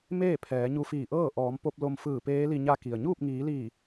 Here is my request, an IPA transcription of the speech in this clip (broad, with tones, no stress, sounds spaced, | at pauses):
m eː˥˨ pʰ ɛː˩˧ ɲ u˧ f iː˧˩ ʔ ɤː˥˨ ʔ ɔː˩˧ m p o˧ p̚ l o˧ m f ɯː˧˩ p eː˧˥ l i˧ ɲ a˧˥ k i˩ ə̯ ɲ uː˥˨ p̚ ŋ iː˩˧ l iː˧˩